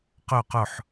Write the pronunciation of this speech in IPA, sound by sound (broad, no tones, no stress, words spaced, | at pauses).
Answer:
qø qɵħ